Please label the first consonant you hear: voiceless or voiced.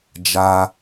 voiced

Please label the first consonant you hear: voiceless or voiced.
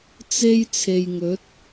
voiceless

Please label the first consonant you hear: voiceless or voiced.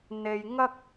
voiced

